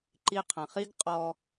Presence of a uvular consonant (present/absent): present